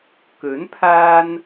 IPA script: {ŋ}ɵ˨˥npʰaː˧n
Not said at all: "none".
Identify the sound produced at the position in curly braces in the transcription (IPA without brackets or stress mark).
k